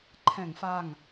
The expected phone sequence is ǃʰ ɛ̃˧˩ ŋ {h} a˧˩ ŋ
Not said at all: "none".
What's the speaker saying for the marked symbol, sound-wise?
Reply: f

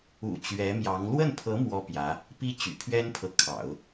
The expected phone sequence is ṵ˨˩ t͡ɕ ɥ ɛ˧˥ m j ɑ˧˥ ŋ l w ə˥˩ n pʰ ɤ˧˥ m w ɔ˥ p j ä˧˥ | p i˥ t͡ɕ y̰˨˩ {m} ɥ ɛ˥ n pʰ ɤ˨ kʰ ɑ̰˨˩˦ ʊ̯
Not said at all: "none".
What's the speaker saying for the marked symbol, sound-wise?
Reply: pʰ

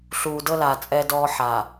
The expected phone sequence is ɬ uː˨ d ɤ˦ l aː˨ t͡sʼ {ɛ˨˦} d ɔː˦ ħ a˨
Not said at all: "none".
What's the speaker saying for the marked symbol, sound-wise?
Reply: ɛ˦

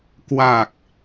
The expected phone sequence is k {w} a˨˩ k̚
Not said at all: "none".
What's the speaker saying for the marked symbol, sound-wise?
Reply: w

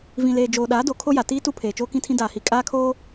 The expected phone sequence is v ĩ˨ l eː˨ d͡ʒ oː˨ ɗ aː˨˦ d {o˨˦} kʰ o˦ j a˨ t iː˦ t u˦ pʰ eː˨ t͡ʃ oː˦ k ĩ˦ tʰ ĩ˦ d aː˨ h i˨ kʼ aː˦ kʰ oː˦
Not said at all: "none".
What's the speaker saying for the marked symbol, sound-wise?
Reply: o˨˦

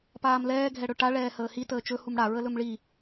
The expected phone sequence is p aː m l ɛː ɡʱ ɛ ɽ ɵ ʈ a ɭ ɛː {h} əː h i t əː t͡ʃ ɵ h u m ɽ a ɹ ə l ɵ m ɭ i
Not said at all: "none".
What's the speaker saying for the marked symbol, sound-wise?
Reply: h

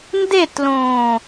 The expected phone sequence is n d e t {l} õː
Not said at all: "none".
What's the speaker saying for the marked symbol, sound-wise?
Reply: l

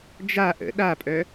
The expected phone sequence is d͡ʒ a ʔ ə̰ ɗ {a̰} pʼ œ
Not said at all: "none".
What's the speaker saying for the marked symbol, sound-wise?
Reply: a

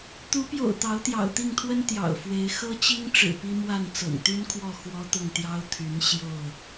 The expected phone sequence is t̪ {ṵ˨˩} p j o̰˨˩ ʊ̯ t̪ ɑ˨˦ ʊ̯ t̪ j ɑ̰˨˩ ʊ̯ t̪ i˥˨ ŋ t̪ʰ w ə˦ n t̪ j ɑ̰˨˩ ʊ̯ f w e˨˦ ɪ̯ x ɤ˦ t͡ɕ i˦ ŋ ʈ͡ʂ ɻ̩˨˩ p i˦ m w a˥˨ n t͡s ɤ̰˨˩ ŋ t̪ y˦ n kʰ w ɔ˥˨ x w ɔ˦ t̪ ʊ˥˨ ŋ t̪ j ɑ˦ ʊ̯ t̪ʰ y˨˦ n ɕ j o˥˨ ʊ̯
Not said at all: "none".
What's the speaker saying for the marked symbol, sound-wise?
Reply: u˨˦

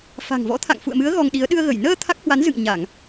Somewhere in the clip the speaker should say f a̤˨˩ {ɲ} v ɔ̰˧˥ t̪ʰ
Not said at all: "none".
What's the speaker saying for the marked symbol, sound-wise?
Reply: ŋ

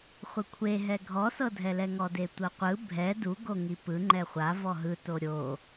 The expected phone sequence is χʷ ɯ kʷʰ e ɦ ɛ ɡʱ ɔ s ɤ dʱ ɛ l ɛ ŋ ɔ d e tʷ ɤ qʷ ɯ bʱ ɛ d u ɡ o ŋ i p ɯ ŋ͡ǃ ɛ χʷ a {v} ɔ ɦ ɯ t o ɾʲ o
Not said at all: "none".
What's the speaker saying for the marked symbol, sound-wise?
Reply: v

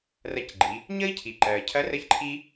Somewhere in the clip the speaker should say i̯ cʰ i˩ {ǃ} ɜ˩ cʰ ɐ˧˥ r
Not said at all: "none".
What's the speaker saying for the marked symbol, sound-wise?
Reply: ǃ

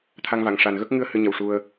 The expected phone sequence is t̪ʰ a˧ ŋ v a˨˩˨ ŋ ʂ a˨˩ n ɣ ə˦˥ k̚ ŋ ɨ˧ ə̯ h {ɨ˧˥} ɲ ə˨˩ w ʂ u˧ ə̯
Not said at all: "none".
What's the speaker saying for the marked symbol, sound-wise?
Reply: ɨ˧˥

